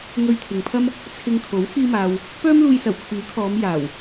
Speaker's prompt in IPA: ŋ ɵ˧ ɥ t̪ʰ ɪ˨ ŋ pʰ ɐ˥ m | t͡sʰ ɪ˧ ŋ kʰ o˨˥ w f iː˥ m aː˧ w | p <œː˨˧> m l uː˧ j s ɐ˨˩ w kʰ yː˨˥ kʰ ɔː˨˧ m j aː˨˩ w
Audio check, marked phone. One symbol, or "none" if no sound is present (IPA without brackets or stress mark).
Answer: œː˥